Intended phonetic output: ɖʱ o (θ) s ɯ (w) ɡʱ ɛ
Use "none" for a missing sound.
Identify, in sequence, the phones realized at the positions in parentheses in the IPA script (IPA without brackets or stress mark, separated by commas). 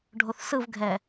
θ, v